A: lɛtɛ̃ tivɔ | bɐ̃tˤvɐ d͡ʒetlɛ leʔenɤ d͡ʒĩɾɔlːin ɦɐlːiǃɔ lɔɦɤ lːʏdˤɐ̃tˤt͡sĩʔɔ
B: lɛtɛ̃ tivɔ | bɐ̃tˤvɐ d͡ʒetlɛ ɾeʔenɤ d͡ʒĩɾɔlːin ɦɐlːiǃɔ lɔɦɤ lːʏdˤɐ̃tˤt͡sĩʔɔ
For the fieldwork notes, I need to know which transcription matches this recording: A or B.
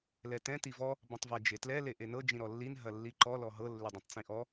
A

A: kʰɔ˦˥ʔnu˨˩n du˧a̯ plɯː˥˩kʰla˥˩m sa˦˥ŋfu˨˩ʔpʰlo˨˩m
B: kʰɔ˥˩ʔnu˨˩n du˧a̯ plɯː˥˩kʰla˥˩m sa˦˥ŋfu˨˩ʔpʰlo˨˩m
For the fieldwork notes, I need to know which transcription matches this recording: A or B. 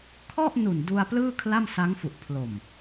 B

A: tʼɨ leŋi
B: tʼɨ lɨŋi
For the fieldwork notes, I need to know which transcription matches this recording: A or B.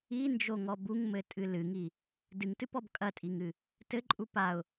B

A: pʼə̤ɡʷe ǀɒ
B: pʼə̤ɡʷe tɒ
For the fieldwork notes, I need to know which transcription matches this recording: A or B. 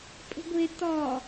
B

